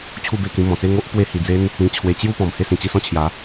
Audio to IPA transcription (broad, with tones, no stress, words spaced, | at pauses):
t͡ɕʰu˥˧be˥˧kĩ˧ mɔ̃˨˩t͡se˥˧ŋo˦ʔ pwe˦hi˧ d͡ze˦n | ĩ˧t͡ɕʰwe˧ t͡ɕju˥˧ pɔ̃˨˩mhe˥˧sĩ˨˩ t͡ɕi˥˧sɔ̃˥˧t͡ɕʰja˨˦